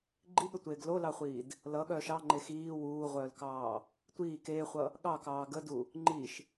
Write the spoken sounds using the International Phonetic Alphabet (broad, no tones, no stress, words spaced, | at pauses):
ɡ͡ǃiɠətʷeːɡ lolɑχʷiːd | lʌɠœːʃ ɑŋ͡ǃe xiː wuːʁʷœːlkɑː | tʷiː keːχʷʌ | ɠɑkɑː ɡədu | ŋ͡ǃiʃ